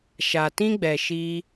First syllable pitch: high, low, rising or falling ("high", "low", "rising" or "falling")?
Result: low